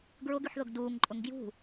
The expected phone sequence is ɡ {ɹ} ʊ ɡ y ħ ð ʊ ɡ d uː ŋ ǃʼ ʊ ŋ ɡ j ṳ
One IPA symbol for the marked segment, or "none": ɹ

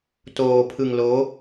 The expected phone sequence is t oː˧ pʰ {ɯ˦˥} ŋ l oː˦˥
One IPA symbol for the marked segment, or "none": ɯ˧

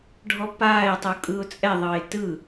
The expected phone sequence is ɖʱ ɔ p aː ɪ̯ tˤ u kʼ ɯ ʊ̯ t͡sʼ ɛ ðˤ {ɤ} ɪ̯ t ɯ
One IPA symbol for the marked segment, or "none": ɤ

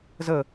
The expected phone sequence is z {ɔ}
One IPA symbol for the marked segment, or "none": ə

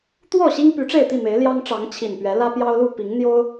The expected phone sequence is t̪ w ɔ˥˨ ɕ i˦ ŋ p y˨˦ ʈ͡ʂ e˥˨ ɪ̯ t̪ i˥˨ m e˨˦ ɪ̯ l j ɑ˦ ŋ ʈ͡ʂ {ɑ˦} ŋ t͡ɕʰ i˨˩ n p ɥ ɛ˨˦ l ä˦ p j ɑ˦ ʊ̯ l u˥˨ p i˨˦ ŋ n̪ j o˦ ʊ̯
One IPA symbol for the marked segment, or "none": ɑ˨˦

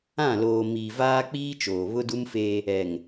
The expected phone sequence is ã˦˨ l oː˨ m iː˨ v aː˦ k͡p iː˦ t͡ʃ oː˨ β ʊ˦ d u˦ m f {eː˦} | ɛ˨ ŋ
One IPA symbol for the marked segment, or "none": eː˦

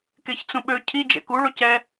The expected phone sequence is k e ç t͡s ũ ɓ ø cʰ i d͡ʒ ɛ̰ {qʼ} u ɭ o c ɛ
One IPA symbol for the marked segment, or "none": k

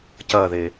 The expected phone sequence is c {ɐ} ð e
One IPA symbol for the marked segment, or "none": ɐ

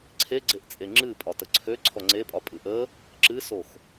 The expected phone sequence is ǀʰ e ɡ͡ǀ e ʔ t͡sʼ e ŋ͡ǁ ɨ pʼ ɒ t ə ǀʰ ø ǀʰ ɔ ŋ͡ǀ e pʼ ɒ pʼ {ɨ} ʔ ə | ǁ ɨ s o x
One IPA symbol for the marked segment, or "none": ɨ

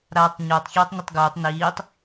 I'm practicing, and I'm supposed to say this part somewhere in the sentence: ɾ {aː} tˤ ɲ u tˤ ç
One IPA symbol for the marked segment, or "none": aː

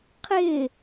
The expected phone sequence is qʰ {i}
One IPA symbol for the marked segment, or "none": ɪ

